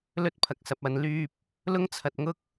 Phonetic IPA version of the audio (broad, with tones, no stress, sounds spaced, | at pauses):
l ɵ˥ t̚ pʰ ɐ˨ k̚ s ɐ˨ p̚ ɐ˨ n l yː˧ p̚ | l ʊ˥ ŋ t͡sʰ ɐ˨ t̚ ŋ ʊ˥ k̚